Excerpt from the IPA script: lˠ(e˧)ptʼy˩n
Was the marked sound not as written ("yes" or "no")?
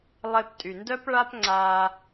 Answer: no